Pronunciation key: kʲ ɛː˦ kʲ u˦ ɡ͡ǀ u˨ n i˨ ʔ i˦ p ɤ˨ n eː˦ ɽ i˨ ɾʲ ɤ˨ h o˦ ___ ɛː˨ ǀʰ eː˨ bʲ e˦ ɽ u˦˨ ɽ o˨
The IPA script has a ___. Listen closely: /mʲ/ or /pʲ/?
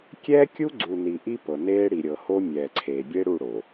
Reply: mʲ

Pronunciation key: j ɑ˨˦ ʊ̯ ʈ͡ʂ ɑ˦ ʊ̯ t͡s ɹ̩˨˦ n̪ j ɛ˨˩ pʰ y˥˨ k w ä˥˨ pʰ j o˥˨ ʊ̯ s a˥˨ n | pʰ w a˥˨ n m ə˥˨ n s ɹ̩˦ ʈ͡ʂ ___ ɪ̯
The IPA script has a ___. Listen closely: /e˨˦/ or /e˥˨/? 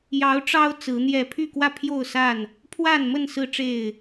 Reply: e˥˨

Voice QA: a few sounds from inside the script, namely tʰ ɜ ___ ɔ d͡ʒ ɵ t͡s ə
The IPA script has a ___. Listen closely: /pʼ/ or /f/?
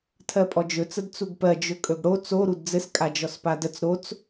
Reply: pʼ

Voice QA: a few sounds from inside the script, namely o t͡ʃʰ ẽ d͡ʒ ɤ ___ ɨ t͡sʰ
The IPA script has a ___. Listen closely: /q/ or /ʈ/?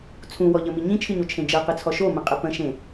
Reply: q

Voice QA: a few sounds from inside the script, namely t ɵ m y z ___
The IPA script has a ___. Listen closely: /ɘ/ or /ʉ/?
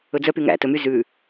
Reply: ʉ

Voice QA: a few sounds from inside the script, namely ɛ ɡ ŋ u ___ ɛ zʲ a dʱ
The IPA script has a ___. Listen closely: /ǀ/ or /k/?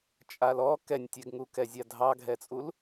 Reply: k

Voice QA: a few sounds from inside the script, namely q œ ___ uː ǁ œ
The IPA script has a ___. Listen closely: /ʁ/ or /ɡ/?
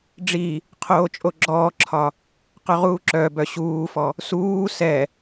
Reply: ʁ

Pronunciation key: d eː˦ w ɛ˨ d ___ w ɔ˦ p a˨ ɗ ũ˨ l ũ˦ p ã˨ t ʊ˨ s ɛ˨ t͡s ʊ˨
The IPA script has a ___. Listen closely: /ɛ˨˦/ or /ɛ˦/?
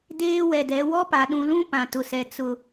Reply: ɛ˨˦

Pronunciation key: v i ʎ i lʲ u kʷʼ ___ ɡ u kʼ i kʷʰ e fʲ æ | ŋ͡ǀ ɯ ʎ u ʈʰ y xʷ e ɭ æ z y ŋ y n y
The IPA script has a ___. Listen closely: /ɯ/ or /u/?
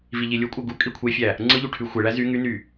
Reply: ɯ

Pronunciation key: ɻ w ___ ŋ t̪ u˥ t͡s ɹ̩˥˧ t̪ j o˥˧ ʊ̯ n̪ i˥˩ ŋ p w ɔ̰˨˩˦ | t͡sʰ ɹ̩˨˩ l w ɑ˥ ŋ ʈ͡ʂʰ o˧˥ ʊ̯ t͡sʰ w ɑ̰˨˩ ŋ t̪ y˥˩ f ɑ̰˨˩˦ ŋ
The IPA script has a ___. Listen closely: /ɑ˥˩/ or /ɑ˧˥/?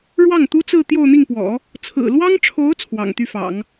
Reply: ɑ˥˩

